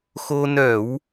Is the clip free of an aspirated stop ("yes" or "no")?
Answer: yes